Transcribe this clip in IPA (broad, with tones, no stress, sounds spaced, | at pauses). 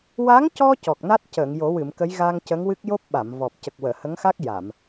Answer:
w a˧˥ ŋ c ɔ˧ c ɔ˨˩ k̚ n a˦˥ t̚ c əː˨˩˨ ŋ j o˨˩˦ w ɨ˨˩˨ m k ə˧˥ j ɣ a˧ ŋ c ə˧˥ ŋ w ɨ˦˥ k̚ j o˦˥ p̚ ɓ a˨˩˨ m v ɔ˨˩ p̚ c ə˨˩ k̚ w əː˨˩˨ h ə˧˥ ŋ x a˦˥ k̚ j a˨˩˨ m